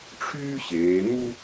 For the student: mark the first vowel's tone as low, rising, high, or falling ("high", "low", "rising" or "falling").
high